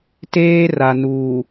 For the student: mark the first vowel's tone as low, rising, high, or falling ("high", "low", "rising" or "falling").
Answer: high